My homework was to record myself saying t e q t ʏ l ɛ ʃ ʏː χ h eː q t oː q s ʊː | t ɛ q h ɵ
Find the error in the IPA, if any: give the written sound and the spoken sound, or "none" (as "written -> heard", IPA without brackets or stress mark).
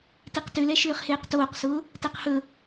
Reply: none